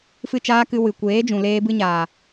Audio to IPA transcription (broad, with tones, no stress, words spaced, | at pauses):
fɨ˦˨t͡ʃaː˦kɨ˧ wɨ˨kʷeː˨˦d͡ʒũ˨ leː˧bɨ˧ɲaː˨